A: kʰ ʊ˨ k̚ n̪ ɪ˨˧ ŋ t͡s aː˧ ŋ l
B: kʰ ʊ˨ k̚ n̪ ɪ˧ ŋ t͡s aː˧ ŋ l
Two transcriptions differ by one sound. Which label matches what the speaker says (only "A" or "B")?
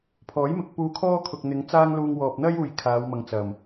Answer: A